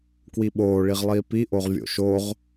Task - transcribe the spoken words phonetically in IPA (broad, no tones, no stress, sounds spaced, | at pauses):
k w i ɓ oː ɭ i ʁ lˠ iː p i ʔ o ʁ vʲ o̰ ʃ o ʁ